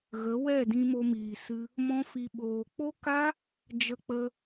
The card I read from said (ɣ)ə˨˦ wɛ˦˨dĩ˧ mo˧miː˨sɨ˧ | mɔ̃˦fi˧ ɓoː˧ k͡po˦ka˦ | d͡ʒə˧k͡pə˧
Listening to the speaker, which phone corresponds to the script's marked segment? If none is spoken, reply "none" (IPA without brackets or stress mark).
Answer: ɣ